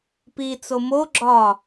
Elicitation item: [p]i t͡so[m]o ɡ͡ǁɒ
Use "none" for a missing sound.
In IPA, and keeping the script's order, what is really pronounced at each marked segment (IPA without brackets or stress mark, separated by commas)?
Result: p, m